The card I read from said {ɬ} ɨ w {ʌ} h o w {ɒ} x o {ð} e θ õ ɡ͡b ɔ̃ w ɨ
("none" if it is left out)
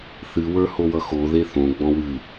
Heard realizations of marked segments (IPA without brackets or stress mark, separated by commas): θ, ə˞, ʌ, ð